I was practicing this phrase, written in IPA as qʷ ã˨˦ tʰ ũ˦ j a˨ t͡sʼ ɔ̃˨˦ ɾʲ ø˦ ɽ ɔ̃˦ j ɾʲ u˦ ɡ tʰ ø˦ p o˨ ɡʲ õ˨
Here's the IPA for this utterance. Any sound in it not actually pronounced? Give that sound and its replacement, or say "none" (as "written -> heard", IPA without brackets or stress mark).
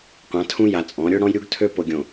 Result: none